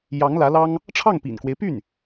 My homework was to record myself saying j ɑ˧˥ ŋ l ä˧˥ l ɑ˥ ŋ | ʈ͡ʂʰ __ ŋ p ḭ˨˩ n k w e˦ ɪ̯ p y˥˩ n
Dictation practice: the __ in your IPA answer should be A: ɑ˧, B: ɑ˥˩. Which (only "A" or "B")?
B